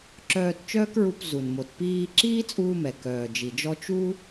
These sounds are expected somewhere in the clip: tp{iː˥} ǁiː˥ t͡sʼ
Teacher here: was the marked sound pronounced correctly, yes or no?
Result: no